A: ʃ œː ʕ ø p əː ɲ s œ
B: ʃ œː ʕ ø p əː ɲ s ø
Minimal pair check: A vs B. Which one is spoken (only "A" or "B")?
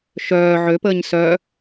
A